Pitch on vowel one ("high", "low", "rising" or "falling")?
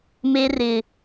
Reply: high